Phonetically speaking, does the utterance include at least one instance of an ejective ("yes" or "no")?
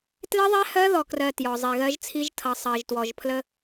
no